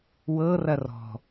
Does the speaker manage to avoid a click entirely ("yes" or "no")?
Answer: yes